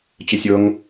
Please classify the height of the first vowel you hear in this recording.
mid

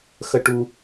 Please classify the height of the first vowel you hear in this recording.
mid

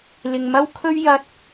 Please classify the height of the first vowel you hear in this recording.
high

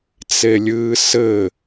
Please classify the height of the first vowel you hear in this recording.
mid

